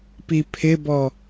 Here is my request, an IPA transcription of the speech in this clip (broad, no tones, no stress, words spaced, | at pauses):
pipʰɪbɔ